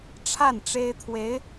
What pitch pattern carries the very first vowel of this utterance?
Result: falling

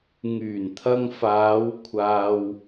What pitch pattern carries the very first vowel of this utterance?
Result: low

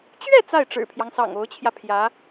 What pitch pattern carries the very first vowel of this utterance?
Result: falling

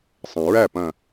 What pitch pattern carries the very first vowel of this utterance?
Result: low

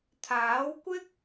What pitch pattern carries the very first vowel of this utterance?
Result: rising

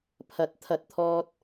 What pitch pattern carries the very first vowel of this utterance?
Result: rising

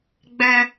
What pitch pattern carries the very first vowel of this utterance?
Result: high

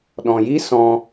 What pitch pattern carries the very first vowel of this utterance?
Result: low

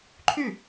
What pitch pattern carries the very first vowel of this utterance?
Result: falling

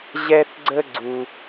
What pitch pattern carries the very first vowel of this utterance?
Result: high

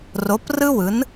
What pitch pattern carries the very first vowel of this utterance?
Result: rising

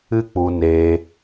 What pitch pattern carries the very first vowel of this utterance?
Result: high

